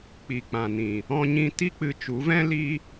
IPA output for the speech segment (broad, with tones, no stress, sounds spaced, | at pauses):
k͡p i˨ k͡p ã˨ n ĩ˨ | ɔ̃˧ ɲ ĩ˧ t i˦ k͡p ɨ˧ t͡ʃ u˨˦ v ɛ̃˦ l i˦